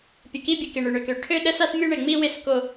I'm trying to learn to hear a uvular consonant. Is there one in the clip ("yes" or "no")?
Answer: no